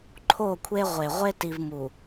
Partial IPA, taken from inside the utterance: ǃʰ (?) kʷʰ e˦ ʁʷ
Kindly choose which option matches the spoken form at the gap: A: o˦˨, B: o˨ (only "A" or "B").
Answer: A